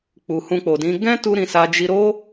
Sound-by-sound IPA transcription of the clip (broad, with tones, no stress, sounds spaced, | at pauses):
k͡p u˨ h ũ˧ k͡p o˨ d ĩ˨˦ ɡ ɛ̃˦ t u˧ ɾ ĩ˧ s a˧ d͡ʒ i˧ ɾ o˦